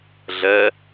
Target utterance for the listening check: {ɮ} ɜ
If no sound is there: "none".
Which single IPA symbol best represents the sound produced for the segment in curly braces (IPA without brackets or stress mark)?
ɮ